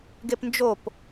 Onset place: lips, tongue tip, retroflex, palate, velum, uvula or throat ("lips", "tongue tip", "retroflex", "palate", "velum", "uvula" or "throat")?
velum